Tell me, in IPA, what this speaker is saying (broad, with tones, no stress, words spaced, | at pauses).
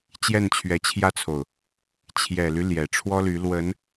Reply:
t͡ɕjɛ˥˩nt͡ɕʰɥɛ˧˥t͡ɕʰjä˥t͡sʰo˨ʊ̯ | t͡ɕʰjɛ˨˩ly˦ ljɛ˨˩ʈ͡ʂʰwɔ˥ly˧˥ lwə˧˥n